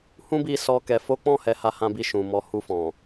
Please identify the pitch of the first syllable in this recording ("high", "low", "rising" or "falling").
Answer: high